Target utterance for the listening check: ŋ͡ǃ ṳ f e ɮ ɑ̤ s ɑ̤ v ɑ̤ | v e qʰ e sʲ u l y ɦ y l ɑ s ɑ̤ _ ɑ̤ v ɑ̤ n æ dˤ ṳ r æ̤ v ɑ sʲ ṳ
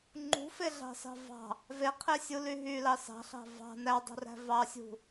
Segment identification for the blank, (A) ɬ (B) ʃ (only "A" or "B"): A